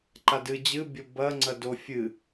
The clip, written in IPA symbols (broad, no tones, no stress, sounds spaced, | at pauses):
ǃ a d ɨ d͡ʑ ɨ bʲ o b ɐ ŋ͡ǀ ɐ d o fʲ ɨ